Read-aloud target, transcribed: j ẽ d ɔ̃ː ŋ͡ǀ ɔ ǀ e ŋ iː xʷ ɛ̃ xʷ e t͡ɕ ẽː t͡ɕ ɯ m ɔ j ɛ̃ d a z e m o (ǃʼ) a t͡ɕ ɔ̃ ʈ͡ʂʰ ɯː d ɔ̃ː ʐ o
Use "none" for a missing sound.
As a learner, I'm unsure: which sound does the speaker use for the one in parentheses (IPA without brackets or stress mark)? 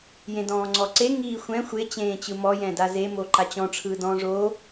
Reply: ǃ